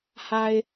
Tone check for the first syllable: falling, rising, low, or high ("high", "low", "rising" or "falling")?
low